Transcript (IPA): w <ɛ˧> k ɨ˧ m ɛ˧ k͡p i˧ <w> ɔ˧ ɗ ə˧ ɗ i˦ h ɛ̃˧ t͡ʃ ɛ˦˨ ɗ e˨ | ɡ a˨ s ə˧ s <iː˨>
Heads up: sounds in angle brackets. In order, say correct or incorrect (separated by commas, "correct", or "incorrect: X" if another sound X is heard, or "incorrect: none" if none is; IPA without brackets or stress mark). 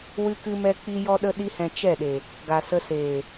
incorrect: ɨ˧, incorrect: j, incorrect: eː˨